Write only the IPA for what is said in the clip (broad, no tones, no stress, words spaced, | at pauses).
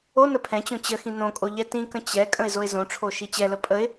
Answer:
o nəpʰɛ̃t͡ɕõ t͡ɕəxĩ nõkʼo ʎɛtĩkə̃ t͡ɕɛ kʼə̃ɪ̯zoɪ̯zõʈ͡ʂʰo ʃit͡ɕɛlə pʼəɪ̯